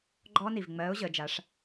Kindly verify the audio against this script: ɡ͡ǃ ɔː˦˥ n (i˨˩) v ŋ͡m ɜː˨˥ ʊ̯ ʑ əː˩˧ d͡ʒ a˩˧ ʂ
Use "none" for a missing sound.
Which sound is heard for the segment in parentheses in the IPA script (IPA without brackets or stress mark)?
i˨˩